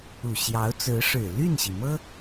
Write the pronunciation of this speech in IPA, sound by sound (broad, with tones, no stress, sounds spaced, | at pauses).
u˨˩ ɕ j ɑ˧˥ ʊ̯ t͡s ɹ̩˧˥ ʂ ɻ̩˨˩ l y˥˩ n ɕ i˩ m ɤ˥